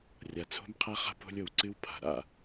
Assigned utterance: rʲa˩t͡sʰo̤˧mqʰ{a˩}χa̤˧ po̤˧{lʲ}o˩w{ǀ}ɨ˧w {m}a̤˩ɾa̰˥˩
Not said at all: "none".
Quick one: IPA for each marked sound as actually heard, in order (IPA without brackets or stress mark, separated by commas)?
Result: a˧, lʲ, ǀ, pʰ